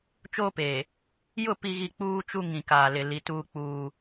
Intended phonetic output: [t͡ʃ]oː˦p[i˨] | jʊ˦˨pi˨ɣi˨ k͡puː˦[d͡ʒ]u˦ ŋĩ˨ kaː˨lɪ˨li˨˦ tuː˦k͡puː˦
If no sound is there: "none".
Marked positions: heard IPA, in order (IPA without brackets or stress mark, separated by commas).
t͡ʃ, e˨, t͡ʃ